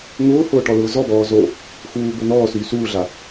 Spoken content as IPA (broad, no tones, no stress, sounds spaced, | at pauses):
ŋ ʊː h ʊː ʈ ɔ l ʊː z ɔ b ɔː z o | x uː b ʊ n̪ ɔː s yː s uː ɮ a